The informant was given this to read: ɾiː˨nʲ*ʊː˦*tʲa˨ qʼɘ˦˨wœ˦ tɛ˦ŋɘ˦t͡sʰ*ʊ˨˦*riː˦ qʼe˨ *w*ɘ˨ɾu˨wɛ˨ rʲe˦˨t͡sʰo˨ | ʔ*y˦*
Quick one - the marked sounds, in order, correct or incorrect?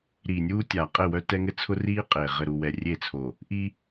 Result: incorrect: uː˦, incorrect: ʊ˦, incorrect: ʁ, incorrect: i˦

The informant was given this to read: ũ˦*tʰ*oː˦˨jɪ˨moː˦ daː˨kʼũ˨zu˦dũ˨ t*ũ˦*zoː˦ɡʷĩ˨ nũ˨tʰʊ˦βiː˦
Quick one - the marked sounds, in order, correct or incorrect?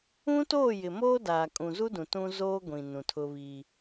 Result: incorrect: t, correct

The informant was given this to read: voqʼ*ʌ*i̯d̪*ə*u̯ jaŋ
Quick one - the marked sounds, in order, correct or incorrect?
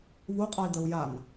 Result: correct, correct

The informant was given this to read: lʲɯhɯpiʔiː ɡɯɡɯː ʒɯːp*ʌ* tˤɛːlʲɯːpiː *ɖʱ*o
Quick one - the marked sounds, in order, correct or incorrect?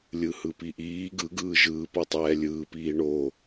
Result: correct, incorrect: ɳ

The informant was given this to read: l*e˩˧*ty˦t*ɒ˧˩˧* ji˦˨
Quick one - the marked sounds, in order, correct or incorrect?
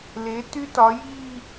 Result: correct, incorrect: ɒ˩˧

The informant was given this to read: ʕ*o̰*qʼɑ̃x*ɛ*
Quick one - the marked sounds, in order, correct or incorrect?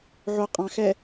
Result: incorrect: o, correct

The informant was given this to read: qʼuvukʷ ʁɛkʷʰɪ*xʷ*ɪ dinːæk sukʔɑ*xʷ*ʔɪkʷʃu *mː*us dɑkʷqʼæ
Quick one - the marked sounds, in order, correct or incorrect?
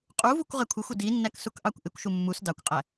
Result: correct, incorrect: kʷ, correct

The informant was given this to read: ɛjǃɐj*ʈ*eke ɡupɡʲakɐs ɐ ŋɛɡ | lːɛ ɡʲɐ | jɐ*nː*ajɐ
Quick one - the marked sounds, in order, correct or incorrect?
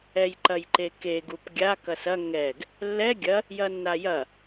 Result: incorrect: ǃ, correct

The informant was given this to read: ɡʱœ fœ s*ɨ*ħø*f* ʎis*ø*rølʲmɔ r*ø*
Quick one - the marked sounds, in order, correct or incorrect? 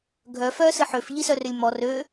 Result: correct, correct, incorrect: œ, correct

